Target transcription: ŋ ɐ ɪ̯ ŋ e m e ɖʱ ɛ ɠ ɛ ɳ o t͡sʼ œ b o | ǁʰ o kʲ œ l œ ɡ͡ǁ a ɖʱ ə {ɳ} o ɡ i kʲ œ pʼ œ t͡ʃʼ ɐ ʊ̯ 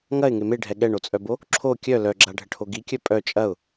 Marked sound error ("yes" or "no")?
yes